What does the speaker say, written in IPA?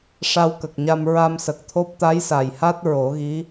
ʂ a˧ w k ə˨˩ k̚ ɲ a˧ m ɹ a˧ m s ə˨˩ k̚ t̪ʰ o˦˥ p̚ t̪ a˧˥ j s a˨˩ j h a˦˥ t̚ ɹ o˨˩˦ ɣ i˧˥

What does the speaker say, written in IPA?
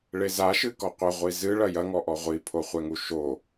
ɭ e z a ʃ ɨ k ɔ qʷ ɘ ʁʷ i z ɨ ɭ ɐ j ɐ ŋ ɔ ʔ ɔ ʁʷ i pʰ o χʷ ɛ ŋ u ʃ o

